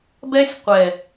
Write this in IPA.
b ɛ˦ sʲ qʷ ɛ˨

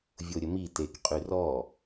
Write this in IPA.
vʲ o ɾʲ ə m i t e k qʼ y r ɔ

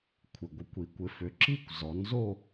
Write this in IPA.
kʷʰ ɪ˩ ɡʷ ɪ˩˥ kʷ i˩˧ kʷ ɪ˩˧ f ʏ˩˧ ǁ i˦˨ kʷ z ɔ˩˧ n z o˦˨

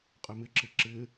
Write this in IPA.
qʼ ɪ m ɪ ǁ ɪ ǁ ɪ

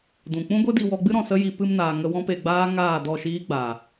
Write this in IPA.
d ũ˨ k͡p ũ˦ ɡʷ e˦ d i˧ w ɔ˧ ɡ͡b ɨ˦ ɾ ɔ̃˨ s ə˦ j i˧ p ɨ˧ m n aː˨ ŋ ə˧ w ɔ̃˦ p e˧ ɡ͡b aː˦ ŋ aː˦˨ d ɔ˦˨ ʃ iː˦ ɡ͡b aː˨

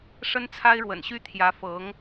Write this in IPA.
ʂ ə˥ n t͡sʰ a˥ ɪ̯ ɻ w ə̰˨˩ n ɕ y˥ t̪ʰ j ä˧˥ f ɤ˧˥ ŋ

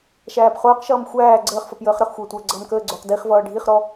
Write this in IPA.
ʃ æː p χ ʊː q ʃ ʌː m xʷ æː ɡ͡ǀ əː χ f ʌ p j əː χ ɾ ə χ xʷ əː tʷ əː ɡ͡ǀ ʌː m k əː ɡ͡ǀ ʊː q d i χ v ʌː ɖʱ i χ ɾ ɔ

